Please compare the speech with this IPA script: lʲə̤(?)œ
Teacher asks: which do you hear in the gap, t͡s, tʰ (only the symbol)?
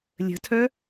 tʰ